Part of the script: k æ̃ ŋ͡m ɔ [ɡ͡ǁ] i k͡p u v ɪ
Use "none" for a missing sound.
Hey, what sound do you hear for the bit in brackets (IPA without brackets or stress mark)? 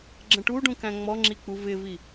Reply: ŋ͡ǁ